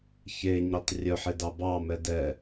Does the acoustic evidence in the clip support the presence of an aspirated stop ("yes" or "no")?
no